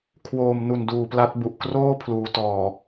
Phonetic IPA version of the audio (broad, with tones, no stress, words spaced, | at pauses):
kʰwoː˨˩mnu˨˩n duː˨˩pla˦˥t̚bu˨˩ʔ kroː˥˩ pʰluː˩˦tɔː˨˩